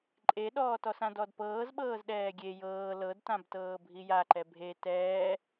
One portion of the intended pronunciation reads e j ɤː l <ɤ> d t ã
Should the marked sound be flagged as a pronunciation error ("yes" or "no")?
no